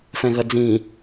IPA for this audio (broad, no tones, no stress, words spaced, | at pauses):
fɛ̃ɣɐd͡zĩ